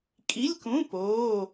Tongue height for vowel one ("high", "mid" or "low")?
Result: high